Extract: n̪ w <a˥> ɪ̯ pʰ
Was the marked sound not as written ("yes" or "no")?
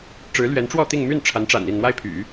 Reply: no